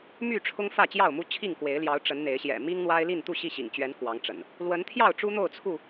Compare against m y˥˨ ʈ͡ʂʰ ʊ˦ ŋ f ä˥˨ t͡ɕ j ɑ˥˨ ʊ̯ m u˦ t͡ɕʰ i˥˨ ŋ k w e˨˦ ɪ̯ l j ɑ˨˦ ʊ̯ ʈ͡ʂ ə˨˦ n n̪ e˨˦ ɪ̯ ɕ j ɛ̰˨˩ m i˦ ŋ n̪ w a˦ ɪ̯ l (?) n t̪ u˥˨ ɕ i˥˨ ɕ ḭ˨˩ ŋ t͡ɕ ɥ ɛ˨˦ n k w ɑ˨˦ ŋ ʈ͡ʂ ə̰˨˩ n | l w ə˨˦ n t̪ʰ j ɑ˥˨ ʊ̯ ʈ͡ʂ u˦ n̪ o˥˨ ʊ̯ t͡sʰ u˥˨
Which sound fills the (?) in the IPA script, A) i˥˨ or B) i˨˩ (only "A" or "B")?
A